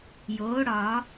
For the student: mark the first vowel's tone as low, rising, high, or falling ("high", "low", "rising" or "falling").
rising